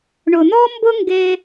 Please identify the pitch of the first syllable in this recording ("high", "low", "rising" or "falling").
low